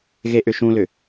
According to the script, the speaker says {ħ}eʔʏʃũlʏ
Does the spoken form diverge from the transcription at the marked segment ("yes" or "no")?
yes